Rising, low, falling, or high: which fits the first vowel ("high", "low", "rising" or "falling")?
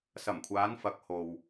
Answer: low